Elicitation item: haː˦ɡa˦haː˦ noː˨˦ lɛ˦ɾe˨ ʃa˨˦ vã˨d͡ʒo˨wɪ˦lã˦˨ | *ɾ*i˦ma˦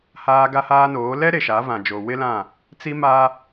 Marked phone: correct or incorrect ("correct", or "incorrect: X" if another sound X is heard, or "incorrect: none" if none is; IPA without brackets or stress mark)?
incorrect: t͡s